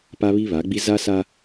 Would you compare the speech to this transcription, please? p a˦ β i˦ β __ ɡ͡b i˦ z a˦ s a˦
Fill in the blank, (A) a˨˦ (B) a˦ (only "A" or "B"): A